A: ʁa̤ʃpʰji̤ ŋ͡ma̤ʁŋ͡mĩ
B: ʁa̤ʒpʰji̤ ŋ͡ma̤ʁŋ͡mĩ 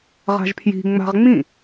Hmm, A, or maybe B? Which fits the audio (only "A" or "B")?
B